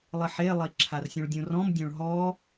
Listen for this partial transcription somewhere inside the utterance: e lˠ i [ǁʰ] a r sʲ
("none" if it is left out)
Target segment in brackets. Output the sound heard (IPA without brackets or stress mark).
ǁʰ